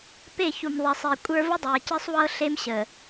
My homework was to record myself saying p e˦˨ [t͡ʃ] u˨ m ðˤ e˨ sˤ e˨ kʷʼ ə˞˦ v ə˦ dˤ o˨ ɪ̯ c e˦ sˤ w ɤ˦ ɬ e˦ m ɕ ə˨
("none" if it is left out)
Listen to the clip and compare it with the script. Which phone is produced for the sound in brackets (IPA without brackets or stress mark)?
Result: ç